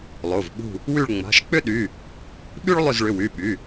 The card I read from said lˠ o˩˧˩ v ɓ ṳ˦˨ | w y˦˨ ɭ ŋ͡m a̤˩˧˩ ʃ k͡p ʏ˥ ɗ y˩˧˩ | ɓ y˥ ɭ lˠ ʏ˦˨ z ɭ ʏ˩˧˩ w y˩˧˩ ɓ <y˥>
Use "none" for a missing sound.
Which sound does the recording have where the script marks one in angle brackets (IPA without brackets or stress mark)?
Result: y˩˧˩